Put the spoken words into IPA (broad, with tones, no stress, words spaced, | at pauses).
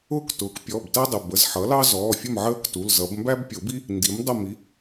ʊː˥˨ktʊː˩˥k pʲɔ˩˧˩b tæ˥dˤʊ˩˧˩ bə˩˧˩z ħʌ˩˥lɑ˥zɔː˩˧˩fʲʊ˥˨m ʕəː˥ktu˩˧˩lzʌ˨˩˦b mbæ˥bpʲʊ˨˩˦bi˥ | ndi˩˥mdˤə˥˨mi˩˥